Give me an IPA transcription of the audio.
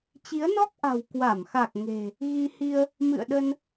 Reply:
t͡ɕ i˨˦ ə̯ n ɔ˦˥ k̚ ʔ a̤˨˩ w k w a˧˩ m x a˨˩ k̚ ŋ e̤˨˩ | ɣ i˧ h i˧ ə̯ | m ɨ̰˧˨ ə̯ ɗ ə˧ n

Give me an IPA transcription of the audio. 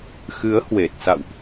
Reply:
x ɨ˨˦ ə̯ h w e˨˩ t̚ s a̰˧˨ w ʔ

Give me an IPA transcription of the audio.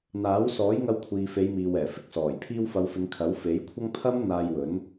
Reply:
n̪ aː˨˥ w s ɔː˨˥ j ŋ ɐ˧ w kʷʰ iː˨ f e˨˧ j m iː˨ w ɛː˨˩ f ɪ˧ k̚ s ɔː˨˩ j pʰ iː˧ w f ɐ˨˧ w f ɪ˨˧ ŋ kʰ ɐ˨˥ w f e˨˥ j kʷʰ ɐ˥ ŋ pʰ ɐ˥ m n̪ aː˧ j w ɵ˨˥ n

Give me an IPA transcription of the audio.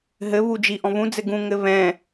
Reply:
ɦ ɘ β u d͡ʒ i ʔ ɔ̃ β ũ d͡z ɘ ɡ ũ ŋ ɘ β ɛ̃

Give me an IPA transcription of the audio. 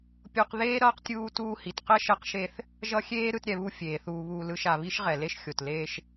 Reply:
pʲ o˦ q ð eː˥ ɾ ʌː˦ q tʲ uː˦ t uː˦ h i˨ t q ɛ˥ ʃ ɛ˦ q ʃ e˦ θ | ʒ ʌ˦ xʲ eː˥ ɾ ɯ˦ t ɾʲ ɛ˨ β u˦ fʲ eː˩ θ uː˨ β uː˨ l ɯ˨ ʃ a˩ β i˥ ʃ ʁ ɛ˩ l e˥ ʃ xʲ o˩ t l eː˦ ʃ

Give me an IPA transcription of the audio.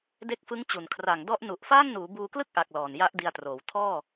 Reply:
d e˦˥ k̚ f ɯ˦˥ ŋ t͡ɕ u˨˩ n kʰ r a˨˩ ŋ d ɔ˦˥ ʔ n u˨˩ ʔ f aː˥˩ ŋ n uː˩˦ b uː˧ k l ɯ˥˩ k̚ ʔ a˨˩ k̚ l ɔː˨˩ n j a˦˥ ʔ d i˧ a̯ t r oː˩˦ w tʰ ɔː˥˩

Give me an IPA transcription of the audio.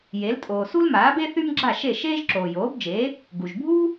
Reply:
j e˩˥ l tʼ oː˩ s u˥ l m aː˩˥ b e˥ θ y˥ m ɡ͡ǁ a˥˩ ʃ e˥˩ ʃ eː˥ ʒ ǁ oː˩ j oː˩˥ b d͡ʒ eː˩˥ | ɡ u˩ ʒ bʱ uː˥

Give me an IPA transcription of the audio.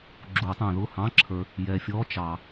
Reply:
ɡ͡ǁ u˨˩˦ tˤ æ̃˨ ð ʊ˥˩ h ɑ̃˧˥˧ ǁʰ ə˞˨ | j ɛ˨ fʲ ɔ˧˥˧ t͡ʃ ɑ˨˩˦

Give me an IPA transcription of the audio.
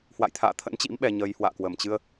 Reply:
h w a̰˧˨ j t̪ʰ a̰ː˧˨ t̪ʰ ə̰˧˥ n t͡ɕ ḭ˧˥ m ɓ ɛ˧ ɲ ə˧ j h w a̰ː˧˨ k w ə˧˩ m t͡ɕ ɨ˧ ə̯

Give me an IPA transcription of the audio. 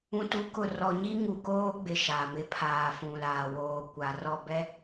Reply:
ũ˨ t u˨˦ k ʊ˨ r ɔ˨ ɲ i˦ ŋ u˨ k oː˦ ɡ͡b ɪ˨ ʃ a˨ m ɪ˦ pʰ aː˨ f ũ˨ l aː˨ w oː˨ kʷ a˨ r ɔ˦˨ b ɛ˦

